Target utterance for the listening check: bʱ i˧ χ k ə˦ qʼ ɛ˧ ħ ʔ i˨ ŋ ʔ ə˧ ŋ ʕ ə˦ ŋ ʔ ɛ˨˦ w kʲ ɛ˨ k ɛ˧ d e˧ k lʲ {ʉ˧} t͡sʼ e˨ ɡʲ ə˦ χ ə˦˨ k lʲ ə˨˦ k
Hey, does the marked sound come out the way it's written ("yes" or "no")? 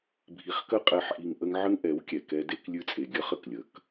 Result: yes